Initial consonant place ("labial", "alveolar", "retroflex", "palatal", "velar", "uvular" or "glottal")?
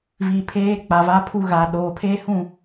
labial